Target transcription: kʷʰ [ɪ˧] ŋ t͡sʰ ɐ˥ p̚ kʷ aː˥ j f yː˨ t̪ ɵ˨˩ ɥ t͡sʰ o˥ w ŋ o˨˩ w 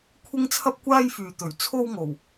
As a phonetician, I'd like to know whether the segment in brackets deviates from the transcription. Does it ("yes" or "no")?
yes